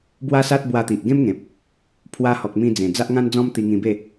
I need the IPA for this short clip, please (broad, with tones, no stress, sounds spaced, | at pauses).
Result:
b w a˦ s a˦ t̚ b w a˧ t̪ i˨ ʔ ɡ ẽ˦ m ŋ ẽ˨ p̚ | pʰ w a˧ h ɔ˨ k̚ m ĩ˧ d͡z ẽ˨˩ d͡z a˦ ʔ ŋ ã˦ n d͡z ɔ̃˦ m t̪ i˧ ŋ ĩ˧ b e˥˧